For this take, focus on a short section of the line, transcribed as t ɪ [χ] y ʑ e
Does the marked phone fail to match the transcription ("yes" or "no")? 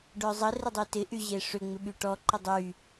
yes